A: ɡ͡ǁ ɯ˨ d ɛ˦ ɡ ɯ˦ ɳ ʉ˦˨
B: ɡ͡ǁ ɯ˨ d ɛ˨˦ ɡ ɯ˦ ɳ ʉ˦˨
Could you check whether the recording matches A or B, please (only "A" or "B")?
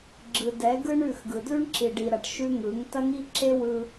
B